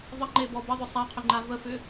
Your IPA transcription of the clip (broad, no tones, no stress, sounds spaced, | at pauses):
ðˤ ə ŋ͡ǃ e b ɔ b ə ðˤ ʏ sˤ a qʰ ʏ ŋ͡ǃ a v ə f ʏ